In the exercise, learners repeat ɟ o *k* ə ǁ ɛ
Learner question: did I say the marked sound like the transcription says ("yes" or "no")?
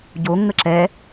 no